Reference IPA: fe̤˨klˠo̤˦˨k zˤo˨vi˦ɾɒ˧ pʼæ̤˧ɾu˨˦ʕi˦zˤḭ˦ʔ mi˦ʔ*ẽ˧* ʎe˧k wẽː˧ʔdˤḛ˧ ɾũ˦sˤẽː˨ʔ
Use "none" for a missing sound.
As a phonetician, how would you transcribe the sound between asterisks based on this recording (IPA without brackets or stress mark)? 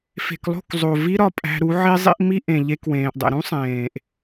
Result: ẽ˨